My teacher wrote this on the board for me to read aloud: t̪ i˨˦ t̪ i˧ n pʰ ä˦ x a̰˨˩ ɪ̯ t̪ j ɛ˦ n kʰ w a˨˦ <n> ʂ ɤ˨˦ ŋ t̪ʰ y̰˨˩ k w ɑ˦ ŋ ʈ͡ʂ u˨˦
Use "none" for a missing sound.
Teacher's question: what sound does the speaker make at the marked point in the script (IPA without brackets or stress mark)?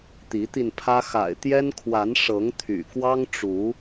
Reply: n